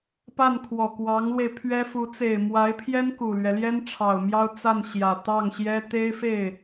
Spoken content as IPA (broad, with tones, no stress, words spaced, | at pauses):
pa˥˩nkʰwɔ˨˩kwɑ˧˥ŋlwe˧ɪ̯ pʰɥɛ˥fu˧˥ t͡se˨˩ɪ̯ mwa˧˥ɪ̯pʰjɛ˥n ku˨˩lɥɛ˦ ljɛ˥nʈ͡ʂʰɑ˨˩ʊ̯mjɑ˥ʊ̯ t͡sa˥˩nɕjä˨˩ t̪ɑ˥˩ŋɕjɛ˥ t̪e˥ɪ̯fe˥˩ɪ̯